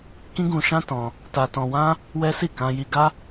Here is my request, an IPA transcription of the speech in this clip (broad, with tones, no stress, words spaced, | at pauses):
kĩ˦ɡũ˧ʃã˦ tɔ̃˧ | ta˧tɔ̃˧wã˦ | wɛ˦si˦˨ kã˧ji˧ɡa˦